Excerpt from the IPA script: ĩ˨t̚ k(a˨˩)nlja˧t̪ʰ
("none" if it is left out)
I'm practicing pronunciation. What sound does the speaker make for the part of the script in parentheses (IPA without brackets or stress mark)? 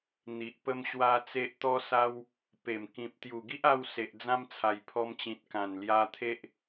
ã˨˩